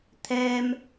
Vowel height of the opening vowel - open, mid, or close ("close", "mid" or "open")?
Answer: mid